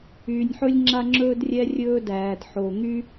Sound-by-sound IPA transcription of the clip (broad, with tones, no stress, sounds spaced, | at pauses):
yː˩ nʲ ħ ɵ˧ lʲ ŋ͡ǁ a˧ ŋ͡ǁ ɵː˧ d rʲ ɛ˧ rʲ ɵː˧ d æː˩ d ħ o˩ ŋ y˥